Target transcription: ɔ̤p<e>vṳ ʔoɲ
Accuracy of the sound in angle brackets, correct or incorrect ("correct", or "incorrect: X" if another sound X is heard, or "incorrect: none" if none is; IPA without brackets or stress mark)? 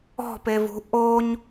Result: correct